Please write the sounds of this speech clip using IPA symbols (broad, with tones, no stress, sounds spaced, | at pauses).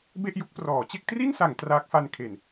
b e˥˩ ʔ j u˥˩ k̚ p r ɔː˩˦ t͡ɕ e˥˩ k̚ t r i˥˩ n s a˩˦ ŋ t r aː˦˥ k̚ f a˧ n kʰ e˨˩ n